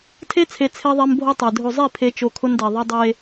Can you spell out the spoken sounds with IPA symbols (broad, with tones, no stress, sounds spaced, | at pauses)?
tʰ e˦ t͡sʰ e˨ t͡sʰ e˦ ðˤ ɛ˦ m bʱ o˦ tˤ e˨ dʱ o˨ zˤ i˦˨ pʰ e˦ t͡ʃ o˦ kʰ ʊ˦ n d ɛ˨ ðˤ i˦ dˤ e˦